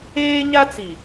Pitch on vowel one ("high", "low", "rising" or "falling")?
high